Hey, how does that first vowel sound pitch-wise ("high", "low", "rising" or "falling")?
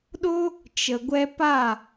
high